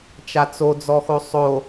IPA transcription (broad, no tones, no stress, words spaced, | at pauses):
t͡ʃat͡sod͡zɔxo sˤo